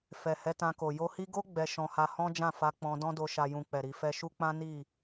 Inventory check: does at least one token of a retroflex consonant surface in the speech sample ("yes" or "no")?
no